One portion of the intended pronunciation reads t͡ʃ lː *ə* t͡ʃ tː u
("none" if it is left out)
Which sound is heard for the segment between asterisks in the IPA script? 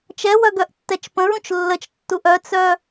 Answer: ə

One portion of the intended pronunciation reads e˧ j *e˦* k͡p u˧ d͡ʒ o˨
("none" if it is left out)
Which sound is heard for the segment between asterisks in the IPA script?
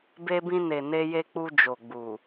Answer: e˧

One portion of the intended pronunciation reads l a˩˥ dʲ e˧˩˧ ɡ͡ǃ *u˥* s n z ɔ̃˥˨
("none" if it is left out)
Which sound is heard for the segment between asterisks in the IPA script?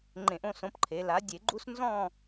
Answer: u˥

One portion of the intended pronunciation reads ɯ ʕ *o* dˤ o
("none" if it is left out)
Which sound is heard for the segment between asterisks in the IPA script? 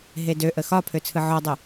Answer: ɔ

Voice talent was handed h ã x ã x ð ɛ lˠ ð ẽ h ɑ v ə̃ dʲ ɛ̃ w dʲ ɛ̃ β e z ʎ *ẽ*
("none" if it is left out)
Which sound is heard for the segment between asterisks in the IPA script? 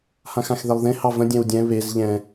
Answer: ɛ̃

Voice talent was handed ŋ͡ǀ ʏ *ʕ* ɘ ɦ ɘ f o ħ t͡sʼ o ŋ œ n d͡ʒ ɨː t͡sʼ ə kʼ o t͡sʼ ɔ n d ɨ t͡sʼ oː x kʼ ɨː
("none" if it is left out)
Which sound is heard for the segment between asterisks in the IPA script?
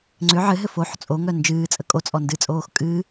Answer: ʕ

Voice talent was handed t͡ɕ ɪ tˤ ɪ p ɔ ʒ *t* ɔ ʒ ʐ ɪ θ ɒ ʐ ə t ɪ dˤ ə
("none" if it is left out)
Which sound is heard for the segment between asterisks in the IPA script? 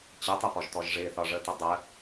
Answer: t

